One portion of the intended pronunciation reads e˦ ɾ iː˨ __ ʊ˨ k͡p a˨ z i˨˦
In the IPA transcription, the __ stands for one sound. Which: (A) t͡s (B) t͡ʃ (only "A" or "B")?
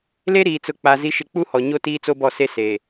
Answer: A